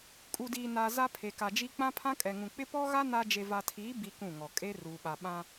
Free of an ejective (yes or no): no